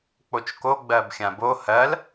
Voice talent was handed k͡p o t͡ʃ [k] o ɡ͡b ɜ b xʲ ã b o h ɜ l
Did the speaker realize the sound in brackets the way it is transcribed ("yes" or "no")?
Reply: yes